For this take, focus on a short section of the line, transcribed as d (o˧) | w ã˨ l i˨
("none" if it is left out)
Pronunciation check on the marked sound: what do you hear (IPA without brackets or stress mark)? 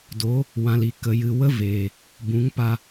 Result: o˨˦